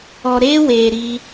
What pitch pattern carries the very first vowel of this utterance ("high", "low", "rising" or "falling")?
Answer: low